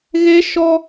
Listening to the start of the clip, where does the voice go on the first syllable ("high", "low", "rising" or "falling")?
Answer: high